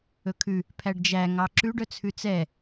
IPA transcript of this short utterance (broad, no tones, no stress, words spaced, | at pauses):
ɵkʰʉ | pʰæɖd͡ʒæ ŋɑǁʉɖ œt͡sʰʉt͡sɛ